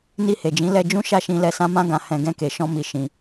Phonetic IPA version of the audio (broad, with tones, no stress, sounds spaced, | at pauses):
n i˧ h e˨ d͡ʒ ĩ˨˦ l ɛ˧ d͡ʒ ũ˦ ʃ a˦˨ ʃ ĩ˧ l ɛ˧ s ã˦ m ã˦ ɡ ã˧ h ɛ̃˧ ɡ ɛ̃˧ k e˨ ʃ ɔ̃˧ m i˨ ʃ ĩ˨